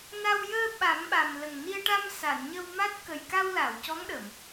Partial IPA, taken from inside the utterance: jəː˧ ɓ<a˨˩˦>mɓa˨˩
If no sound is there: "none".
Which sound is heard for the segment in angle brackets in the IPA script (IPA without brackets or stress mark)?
a˨˩˦